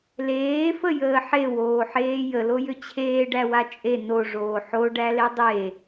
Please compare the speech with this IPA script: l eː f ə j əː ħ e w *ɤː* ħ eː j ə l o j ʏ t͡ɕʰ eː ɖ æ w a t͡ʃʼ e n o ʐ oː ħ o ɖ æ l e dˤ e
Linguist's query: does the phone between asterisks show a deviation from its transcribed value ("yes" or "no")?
yes